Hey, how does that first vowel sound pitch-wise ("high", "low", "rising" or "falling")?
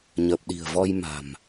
low